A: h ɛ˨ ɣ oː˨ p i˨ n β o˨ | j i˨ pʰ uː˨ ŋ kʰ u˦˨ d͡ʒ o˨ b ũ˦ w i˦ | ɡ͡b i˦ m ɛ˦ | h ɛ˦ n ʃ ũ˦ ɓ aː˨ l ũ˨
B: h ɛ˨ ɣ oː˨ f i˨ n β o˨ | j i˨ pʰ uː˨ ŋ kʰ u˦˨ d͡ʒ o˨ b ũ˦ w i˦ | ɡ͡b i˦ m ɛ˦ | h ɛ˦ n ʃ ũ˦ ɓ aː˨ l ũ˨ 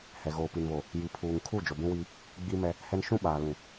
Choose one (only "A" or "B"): A